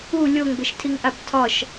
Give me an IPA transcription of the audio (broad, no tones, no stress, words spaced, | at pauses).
u lʲoŋbɘʃtʰiŋʔab tʰɒʃ